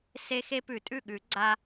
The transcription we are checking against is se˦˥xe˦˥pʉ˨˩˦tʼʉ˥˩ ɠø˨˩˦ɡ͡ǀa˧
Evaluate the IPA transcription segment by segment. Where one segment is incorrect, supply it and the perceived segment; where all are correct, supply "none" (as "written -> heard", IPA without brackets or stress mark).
ø˨˩˦ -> ʉ˨˩˦